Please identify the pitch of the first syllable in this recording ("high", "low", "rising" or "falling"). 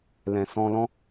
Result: low